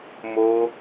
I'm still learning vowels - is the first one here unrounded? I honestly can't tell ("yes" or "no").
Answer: no